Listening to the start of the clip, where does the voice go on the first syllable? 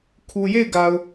low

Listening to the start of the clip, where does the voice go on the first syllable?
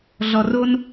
low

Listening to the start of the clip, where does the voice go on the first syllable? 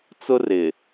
high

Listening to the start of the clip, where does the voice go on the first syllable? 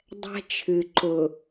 high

